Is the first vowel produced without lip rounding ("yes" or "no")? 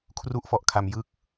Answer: no